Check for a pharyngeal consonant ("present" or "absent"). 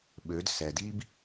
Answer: absent